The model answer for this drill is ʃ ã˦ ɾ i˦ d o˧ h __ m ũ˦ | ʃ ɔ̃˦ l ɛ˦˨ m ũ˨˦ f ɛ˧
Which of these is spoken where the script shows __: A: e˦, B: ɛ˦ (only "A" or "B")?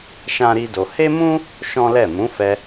A